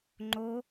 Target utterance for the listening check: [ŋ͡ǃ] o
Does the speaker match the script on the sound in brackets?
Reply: yes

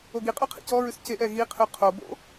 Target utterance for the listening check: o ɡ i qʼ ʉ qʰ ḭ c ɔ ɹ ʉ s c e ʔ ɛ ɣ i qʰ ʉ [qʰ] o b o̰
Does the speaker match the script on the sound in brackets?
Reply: yes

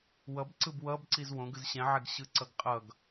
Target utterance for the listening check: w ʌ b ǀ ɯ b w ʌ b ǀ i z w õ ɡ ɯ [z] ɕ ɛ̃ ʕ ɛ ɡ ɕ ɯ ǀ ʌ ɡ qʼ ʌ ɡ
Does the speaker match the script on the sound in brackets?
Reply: yes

